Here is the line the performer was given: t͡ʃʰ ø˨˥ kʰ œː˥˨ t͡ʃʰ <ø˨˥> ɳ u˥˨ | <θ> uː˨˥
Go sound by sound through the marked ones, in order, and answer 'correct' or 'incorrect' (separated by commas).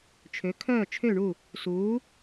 incorrect, incorrect